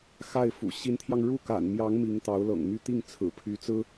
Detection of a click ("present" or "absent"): absent